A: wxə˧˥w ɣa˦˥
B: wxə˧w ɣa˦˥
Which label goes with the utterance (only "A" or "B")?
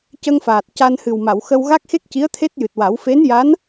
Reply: B